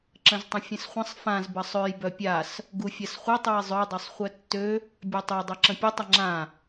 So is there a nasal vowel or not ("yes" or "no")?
yes